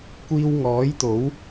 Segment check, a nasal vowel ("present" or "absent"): absent